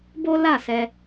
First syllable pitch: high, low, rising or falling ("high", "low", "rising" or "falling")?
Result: high